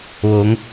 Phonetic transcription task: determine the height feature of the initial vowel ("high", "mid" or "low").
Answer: mid